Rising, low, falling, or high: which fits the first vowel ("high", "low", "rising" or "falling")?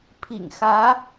low